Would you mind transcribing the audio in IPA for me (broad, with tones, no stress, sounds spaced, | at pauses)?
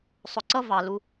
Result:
sˤ ʊ˨ ǀ ʌ˧ v ɑ˨ l u˧